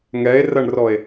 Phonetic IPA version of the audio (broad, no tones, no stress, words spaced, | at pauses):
ŋɛe̯rɐɳrɔe̯